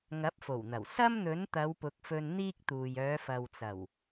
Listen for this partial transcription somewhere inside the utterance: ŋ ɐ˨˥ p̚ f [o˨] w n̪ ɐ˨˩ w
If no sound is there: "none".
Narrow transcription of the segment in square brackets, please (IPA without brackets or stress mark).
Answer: o˨˩